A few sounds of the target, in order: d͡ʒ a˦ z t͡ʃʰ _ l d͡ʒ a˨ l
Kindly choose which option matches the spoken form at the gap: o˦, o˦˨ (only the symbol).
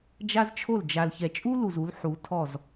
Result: o˦˨